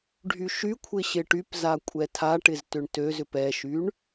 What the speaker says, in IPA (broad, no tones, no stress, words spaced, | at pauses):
ɖʱyʃykʷʰɪ ɕɪʈypza kʷʼɛtʰaʈɪz tʏɳtøzʏp ɛʃyɳ